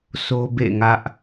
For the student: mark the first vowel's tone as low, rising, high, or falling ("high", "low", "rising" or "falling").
high